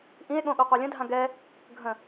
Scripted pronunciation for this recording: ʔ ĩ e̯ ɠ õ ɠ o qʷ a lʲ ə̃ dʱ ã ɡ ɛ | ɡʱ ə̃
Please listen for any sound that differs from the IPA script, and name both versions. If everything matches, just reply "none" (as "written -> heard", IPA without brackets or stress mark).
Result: none